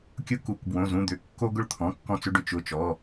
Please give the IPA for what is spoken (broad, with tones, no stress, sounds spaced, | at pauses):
kʲ ʊ˦ k u˩˧˩ k b w õ˩˧˩ z ũ˩˧˩ d̪ ʏ˩˧˩ kː o˦ ɡ ʊ˦ ɭ t̪ʰ ɔ̃˩˧˩ kː ɔ̃˦ t͡s ʏ˦ ɖ ʏ˦ t͡ʃ ʊ˩˧˩ t͡ʃ ɔ˩˧˩